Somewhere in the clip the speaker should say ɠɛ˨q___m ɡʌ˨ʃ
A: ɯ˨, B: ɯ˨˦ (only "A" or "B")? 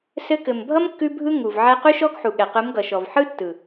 B